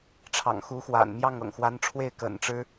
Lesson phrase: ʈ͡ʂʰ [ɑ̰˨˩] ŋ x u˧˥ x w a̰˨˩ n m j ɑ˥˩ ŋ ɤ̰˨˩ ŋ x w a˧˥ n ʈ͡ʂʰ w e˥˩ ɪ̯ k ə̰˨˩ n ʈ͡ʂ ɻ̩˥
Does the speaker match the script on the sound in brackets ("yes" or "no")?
yes